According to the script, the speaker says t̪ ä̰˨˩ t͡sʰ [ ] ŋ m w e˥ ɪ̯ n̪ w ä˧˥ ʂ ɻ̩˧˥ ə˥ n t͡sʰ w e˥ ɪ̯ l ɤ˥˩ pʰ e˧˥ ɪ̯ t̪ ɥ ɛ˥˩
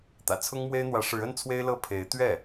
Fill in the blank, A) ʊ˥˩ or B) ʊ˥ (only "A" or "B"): B